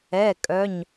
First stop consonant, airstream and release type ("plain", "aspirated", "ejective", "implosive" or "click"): ejective